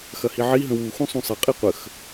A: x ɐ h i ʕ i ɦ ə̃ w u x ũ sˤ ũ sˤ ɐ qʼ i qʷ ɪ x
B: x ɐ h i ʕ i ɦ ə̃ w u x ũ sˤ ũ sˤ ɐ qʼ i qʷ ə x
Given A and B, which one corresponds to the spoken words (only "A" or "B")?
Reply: B